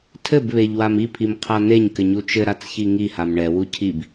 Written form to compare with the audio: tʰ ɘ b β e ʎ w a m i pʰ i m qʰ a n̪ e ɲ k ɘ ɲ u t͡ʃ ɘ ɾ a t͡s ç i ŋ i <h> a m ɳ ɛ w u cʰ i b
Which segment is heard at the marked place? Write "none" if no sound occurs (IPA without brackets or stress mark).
h